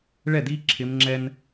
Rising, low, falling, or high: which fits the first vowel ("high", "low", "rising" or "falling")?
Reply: falling